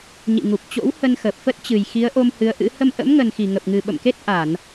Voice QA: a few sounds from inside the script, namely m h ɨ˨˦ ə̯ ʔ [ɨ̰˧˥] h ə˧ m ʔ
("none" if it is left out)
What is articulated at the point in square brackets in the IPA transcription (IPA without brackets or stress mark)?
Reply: ɨ̰˧˥